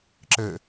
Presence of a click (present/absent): present